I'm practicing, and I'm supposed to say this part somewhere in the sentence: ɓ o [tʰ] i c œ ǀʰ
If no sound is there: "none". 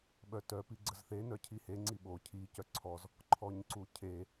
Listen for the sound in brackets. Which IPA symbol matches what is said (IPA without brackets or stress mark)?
cʰ